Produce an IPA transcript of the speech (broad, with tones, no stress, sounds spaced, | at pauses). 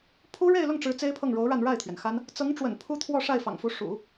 pʰ u˥ ɻ e˥˧ ɪ̯ l ʊ˥˩ ŋ ʈ͡ʂ ɻ̩˧˥ t͡s e˥ ɪ̯ pʰ ɤ˥˩ ŋ ɻ o˧˥ ʊ̯ ɻ a˥˧ n ɻ a˥˩ ɪ̯ t̪ʰ ɥ ɛ˩ n x a˥ n | t͡s ɤ˧˥ ŋ ʈ͡ʂ w ə̰˨˩ n pʰ u˥ t̪ʰ w ɔ˥˧ ʂ a˥˩ ɪ̯ f ɑ̰˨˩ ŋ f u˧˥ ʂ ṵ˨˩˦